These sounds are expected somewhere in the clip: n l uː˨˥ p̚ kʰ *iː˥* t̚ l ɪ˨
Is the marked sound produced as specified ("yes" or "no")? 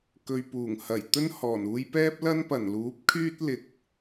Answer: no